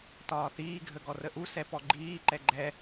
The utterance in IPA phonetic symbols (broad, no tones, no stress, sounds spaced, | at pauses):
t ɒː θ iː ɡʱ ə ɡ ɔ r ə ʔ u s ɛ p ɔ ɡ͡ǃ iː ǃ ɛ ɡ͡ǃ ɛ